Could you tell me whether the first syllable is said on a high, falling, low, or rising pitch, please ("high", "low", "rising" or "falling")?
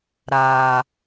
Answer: low